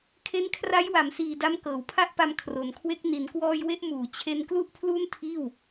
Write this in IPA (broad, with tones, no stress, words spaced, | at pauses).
kʰe˦˥nkʰra˦˥jwa˩˦msiː˨˩ da˦˥mkɤː˩˦wpʰa˥˩ʔpa˧m kʰro˩˦nkʰwe˦˥k̚ ni˩˦nkwɔː˧j we˥˩ʔmuː˩˦ t͡ɕʰe˧nklu˥˩ʔ pʰlu˥˩ntʰiː˥˩w